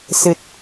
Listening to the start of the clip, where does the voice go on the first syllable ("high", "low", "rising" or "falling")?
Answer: low